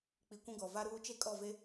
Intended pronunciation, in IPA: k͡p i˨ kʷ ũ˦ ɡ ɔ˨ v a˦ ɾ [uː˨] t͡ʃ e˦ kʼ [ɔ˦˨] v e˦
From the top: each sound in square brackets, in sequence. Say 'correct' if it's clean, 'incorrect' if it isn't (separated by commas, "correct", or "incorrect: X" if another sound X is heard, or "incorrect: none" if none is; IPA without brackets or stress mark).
incorrect: uː˦, correct